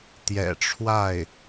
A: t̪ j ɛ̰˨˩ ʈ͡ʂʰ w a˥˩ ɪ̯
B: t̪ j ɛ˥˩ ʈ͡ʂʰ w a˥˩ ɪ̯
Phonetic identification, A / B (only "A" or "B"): A